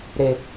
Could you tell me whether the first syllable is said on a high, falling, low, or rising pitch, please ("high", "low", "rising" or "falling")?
low